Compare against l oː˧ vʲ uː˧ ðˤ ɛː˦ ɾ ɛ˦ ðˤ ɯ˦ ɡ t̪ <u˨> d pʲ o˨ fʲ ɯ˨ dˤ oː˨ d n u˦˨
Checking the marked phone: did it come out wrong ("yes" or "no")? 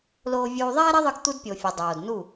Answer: yes